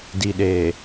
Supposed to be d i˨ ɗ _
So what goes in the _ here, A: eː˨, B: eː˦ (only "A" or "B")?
A